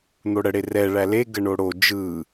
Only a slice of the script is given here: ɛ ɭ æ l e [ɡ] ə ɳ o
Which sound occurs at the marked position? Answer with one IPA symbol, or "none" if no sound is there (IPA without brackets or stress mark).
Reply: ɡ